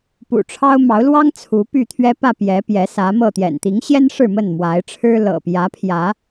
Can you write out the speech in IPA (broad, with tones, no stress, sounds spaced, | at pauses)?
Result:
p ṵ˨˩ ʈ͡ʂʰ ɑ˦ ʊ̯ m ɑ˨˦ ʊ̯ l w ɑ˦ ŋ t͡sʰ u˨˦ p y˥˨ t̪ʰ ɥ ɛ˦ p ä˥˨ p j ɛ˨˦ p j ɛ˨˦ s ä˨˦ m ɤ˥˨ t̪ j ɛ̰˨˩ n t̪ i˨˦ ŋ ɕ j ɛ˦ n ʂ ɻ̩˥˨ m ə˥˨ n m w a˨˦ ɪ̯ ʈ͡ʂʰ ɻ̩˦ l ɤ̰˨˩ p j ä˨˦ pʰ j ä˨˦